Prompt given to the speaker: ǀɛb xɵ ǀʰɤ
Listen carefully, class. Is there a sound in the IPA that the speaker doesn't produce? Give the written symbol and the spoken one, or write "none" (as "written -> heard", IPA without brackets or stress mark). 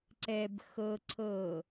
ɵ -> ɤ